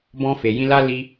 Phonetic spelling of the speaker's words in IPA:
bɔ̃˧fe˨jĩ˧ la˦ li˧

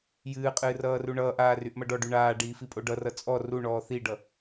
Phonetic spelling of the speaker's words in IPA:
jɨːqʼɨː rʌːruɳʌːʔaː ryʔmʌɖɔɖy ɳaːɖiː fipʼoɖʌrʌ t͡sʼɔ ruɳɔː θiɖʌ

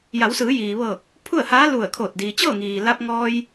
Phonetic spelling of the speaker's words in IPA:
ja˩˧wsɯː˩˧jiː˩ʋɤː˧˩k̚ | pʰu˥˨ə̯haː˧˥lu˧˩ə̯kʰoː˧˩t̚ diː˩t͡ɕɤː˥˨ŋiː˩la˧p̚ ŋɔː˧j

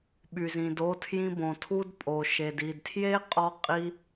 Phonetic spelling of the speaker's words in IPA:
ɓy˨zĩ˨do˧tʰjĩ˧ bõ˨tʰu˧dpʼo˨ ʃe˨di˨dtʰje˦qʼɔ˧ qʼi˦

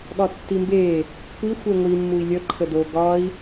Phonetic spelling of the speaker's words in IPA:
ɠɒtːimbe | kʷi xʷeŋʷi mːui̯lʲə ǃʰədo ɡɒi̯

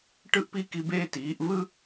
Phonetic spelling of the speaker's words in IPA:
ʈɯ˥˧ʔpi˥˧ki˧beː˥˧ tiː˩˧ʔvɯ˥

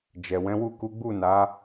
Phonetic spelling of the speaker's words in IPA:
d͡ʒɛ˨wɛ̃˨˦wu˦˨ ku˨˦ɡ͡bu˦˨ na˨˦

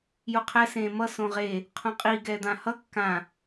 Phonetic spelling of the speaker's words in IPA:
juqʰɛ sẽmʌ sõʁe | qʰõqʼi ɡɛd̪ãhʌ kːã

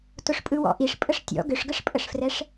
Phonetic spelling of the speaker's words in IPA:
tʊʂpʼɯwɔ̰ʔiʂ pʼəʂtʲɔ̰ ɡʏʂɡəʂpʼəʂfrɛʂ

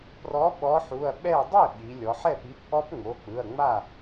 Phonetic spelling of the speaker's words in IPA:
prɔ˨˥ ɓɔ˨˥ħu˩˧˩ɐ̯ɓɛ˥˩ dˤe˥˩ ɓi˩˧lʲɔ˩˧ħ ɛ˥˩p i˨˥pʔɔ˦˥pŋ͡mo˩˧˩k͡pɯ˩˧˩ɐ̯ ŋ͡ma˥˩

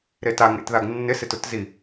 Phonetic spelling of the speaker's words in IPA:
ɾetaŋḛtðaɡ nːɪsɪ tʊtzi

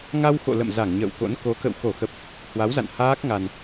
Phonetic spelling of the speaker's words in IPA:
ŋa˧wxo̰˧˨ lə̰˧˨m za˧˩ŋ ɲə̰ː˧˨wko̰˧˥n ko˨˦kə̰˧˨w xo˧˩xə˨˩p̚ | hwa˨˦wza̰˧˨n haː˦˥k̚ŋa˨˩n

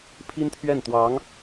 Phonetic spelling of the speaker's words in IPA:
pʰi˥nt̪ʰɥɛ˥˩nt̪wɑ˧˥ŋ

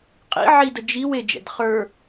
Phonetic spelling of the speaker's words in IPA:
qʼḭ ʕidə d͡ʒiw ed͡ʒɛ̰d χə˞

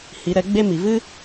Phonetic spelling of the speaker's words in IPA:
hi˨˦ɾɛ˨˦ ɡ͡be˦ mi˨vɨ˦

